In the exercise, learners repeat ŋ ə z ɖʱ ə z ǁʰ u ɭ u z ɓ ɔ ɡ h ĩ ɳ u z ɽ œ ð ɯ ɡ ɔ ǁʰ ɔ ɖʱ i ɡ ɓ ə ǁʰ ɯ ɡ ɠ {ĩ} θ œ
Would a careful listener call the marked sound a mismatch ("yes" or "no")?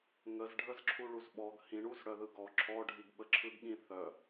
no